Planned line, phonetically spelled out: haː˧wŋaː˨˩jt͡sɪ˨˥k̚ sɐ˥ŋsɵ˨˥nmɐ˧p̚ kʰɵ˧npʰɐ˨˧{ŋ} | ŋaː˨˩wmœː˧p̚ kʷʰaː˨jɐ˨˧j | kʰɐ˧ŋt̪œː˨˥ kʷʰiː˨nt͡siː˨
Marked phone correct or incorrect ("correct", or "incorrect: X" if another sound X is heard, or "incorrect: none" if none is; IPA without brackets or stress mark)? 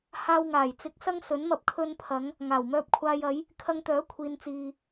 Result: correct